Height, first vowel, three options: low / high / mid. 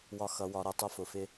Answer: low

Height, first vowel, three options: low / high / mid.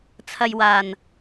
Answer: low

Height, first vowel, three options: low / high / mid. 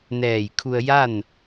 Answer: mid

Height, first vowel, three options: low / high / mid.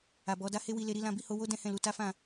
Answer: low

